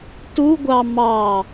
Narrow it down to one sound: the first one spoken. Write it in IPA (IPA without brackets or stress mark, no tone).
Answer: t